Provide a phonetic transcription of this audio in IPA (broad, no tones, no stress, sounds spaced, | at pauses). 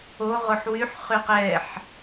o ʁ o ħ w y ħ χ y q ɛ ħ